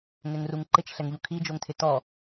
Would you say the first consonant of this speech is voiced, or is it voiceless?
voiced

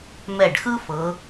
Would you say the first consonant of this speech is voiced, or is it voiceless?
voiced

